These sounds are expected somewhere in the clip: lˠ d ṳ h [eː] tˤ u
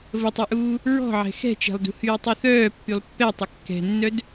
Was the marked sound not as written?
yes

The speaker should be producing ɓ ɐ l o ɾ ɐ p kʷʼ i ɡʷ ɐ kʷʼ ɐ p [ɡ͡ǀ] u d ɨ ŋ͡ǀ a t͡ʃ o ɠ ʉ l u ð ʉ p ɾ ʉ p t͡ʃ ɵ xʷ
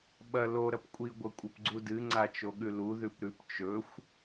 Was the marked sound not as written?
no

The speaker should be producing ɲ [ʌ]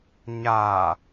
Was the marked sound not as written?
yes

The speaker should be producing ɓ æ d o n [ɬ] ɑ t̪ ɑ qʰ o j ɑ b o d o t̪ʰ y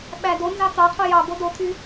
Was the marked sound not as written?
yes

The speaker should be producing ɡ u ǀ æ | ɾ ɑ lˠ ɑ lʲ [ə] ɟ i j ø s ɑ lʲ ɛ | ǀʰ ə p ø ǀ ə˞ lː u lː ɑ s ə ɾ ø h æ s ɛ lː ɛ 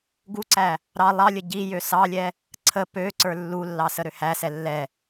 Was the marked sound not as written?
no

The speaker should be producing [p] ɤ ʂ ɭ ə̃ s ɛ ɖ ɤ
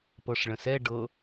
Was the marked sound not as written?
no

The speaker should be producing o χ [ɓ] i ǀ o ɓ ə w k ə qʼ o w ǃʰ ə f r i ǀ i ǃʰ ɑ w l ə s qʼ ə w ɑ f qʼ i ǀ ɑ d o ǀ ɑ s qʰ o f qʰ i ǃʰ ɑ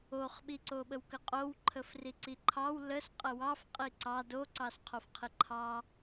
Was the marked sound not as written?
no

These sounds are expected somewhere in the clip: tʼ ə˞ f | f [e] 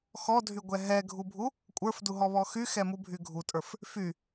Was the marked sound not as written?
yes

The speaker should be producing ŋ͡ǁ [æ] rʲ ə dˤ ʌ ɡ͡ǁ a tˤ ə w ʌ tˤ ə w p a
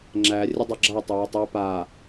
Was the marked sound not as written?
no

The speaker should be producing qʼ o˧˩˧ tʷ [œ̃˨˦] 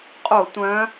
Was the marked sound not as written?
no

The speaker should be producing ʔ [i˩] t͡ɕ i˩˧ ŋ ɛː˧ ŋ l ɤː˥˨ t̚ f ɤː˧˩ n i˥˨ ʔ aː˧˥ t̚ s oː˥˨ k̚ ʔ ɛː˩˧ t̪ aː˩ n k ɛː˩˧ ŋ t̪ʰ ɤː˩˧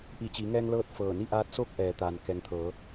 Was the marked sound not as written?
yes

